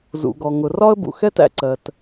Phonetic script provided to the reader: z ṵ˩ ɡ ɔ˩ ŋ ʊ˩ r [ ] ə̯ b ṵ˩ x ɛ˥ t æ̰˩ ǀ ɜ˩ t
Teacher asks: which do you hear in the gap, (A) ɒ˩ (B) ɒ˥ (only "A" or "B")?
B